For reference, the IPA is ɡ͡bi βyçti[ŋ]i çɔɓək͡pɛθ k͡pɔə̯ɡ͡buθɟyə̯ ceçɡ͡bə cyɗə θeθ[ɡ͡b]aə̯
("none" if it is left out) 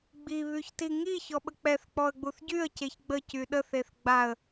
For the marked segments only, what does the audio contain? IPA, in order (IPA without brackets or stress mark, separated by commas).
ŋ, ɡ͡b